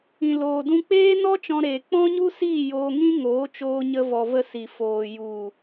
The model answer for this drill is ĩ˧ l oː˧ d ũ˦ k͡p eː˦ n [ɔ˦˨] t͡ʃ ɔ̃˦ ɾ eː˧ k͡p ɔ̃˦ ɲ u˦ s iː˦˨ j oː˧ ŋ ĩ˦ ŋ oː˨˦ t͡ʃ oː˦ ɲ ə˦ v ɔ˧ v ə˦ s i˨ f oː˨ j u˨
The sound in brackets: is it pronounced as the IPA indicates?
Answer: no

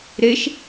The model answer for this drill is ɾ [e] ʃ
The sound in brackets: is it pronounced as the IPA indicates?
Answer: yes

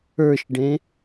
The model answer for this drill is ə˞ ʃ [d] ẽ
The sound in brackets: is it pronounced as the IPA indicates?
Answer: no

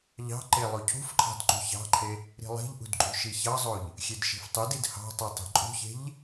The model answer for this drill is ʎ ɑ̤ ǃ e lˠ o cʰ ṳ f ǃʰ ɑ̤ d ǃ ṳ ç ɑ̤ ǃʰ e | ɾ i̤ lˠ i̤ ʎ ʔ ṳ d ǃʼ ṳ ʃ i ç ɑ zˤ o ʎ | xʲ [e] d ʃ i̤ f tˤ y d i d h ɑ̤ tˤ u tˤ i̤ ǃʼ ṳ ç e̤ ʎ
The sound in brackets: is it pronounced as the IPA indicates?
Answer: yes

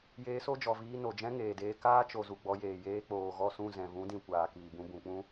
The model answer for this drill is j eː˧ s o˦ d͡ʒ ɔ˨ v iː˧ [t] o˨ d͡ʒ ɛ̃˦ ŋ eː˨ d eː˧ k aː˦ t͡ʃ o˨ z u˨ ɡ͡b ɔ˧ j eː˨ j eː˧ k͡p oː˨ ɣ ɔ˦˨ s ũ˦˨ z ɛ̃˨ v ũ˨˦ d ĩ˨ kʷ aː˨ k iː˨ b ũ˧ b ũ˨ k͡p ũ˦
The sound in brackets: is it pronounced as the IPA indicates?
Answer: no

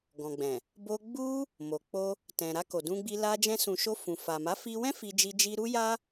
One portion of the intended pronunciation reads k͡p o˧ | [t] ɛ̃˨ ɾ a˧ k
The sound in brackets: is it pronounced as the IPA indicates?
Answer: yes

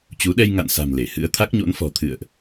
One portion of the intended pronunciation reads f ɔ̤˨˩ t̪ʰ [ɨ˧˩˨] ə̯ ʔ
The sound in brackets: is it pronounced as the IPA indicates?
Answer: no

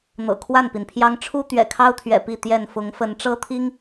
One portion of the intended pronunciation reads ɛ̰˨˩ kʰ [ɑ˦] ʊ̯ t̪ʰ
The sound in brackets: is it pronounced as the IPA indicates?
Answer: yes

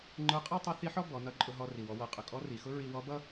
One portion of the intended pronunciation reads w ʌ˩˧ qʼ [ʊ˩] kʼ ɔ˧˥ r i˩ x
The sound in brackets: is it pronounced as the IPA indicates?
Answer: yes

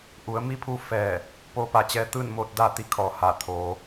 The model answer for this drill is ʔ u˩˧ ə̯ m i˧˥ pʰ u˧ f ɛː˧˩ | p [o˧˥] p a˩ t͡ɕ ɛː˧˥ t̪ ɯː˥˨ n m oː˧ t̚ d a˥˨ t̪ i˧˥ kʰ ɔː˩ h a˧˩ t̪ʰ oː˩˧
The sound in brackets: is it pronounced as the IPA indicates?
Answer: yes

